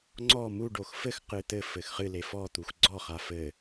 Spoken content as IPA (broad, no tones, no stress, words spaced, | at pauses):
ŋ͡ǀɔ muɖox fɘxqɨ t̪ɘ fɘxχɨle fɔt̪ux ɡ͡ǀɔχa fɘ